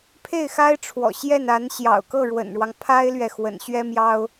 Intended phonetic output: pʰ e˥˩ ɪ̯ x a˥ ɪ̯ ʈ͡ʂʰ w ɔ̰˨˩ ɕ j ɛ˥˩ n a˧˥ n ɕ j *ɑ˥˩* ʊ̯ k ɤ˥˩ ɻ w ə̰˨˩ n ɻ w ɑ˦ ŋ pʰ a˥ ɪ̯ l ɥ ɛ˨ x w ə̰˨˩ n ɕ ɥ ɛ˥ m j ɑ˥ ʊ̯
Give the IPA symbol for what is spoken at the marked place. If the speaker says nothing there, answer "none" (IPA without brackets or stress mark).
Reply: ɑ̰˨˩